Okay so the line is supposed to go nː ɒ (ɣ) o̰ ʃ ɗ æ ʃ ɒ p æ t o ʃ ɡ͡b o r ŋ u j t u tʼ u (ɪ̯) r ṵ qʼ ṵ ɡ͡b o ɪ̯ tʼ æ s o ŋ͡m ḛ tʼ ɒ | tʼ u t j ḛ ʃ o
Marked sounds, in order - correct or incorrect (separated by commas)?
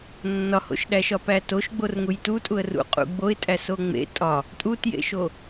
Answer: incorrect, incorrect